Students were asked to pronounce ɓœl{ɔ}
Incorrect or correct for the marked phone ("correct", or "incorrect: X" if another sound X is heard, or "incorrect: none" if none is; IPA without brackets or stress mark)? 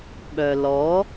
correct